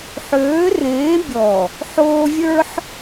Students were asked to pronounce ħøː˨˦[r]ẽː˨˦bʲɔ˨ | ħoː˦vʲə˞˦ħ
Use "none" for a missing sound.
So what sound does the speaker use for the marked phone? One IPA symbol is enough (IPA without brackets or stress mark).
r